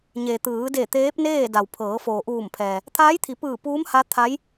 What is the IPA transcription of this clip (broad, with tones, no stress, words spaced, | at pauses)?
ɲe˩t̪ɯː˩˧de˧˩ t̪eː˧˥p̚neː˥˨ da˩wpʰɤː˩˧ foː˩ʔuː˧˩mpʰɛː˩ | t̪ʰaː˧˥jt̪ʰi˩˧pɯː˧˩ puː˧˥mha˧˥ t̪ʰa˧˥j